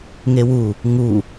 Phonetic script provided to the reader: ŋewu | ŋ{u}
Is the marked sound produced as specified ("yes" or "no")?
yes